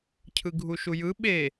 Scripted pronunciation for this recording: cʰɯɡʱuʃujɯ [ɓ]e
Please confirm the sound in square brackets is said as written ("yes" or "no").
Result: yes